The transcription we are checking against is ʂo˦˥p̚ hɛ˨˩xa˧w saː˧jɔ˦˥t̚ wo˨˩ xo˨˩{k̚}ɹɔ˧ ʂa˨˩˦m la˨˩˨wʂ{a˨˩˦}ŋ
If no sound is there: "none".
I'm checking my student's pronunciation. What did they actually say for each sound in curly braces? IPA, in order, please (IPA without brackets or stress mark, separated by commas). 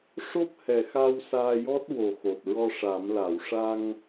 t̚, a˧